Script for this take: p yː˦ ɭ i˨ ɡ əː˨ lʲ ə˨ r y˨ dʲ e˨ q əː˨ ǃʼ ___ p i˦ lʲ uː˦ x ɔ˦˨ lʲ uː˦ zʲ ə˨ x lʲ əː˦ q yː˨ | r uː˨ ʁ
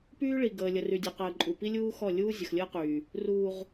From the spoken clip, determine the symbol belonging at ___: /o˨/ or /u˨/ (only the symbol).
u˨